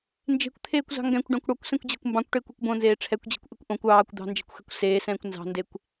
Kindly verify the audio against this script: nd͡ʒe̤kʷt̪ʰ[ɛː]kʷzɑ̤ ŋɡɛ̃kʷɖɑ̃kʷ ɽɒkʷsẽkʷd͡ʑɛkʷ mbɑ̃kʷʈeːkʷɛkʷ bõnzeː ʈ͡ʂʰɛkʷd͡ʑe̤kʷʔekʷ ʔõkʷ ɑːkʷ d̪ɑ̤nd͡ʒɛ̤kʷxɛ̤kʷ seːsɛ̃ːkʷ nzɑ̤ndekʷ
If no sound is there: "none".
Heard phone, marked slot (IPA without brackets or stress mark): eː